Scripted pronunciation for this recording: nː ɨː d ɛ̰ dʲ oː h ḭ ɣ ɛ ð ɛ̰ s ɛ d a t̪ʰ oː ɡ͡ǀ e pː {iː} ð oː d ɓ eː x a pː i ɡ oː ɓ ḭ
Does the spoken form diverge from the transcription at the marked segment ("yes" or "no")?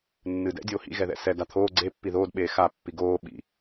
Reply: yes